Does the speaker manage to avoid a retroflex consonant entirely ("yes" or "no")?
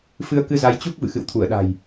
yes